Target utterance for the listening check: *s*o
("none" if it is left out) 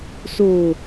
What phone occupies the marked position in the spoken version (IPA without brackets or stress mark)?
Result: s